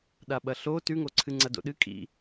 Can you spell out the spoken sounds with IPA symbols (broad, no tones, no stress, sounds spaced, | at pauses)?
ɗ a ɓ ɐ ɬ o t ʉ ŋ o ǀʰ ɨ ŋ͡ǀ ɐ d o̰ ɗ ɨ kʼ ḭ